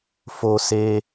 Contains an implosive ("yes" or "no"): no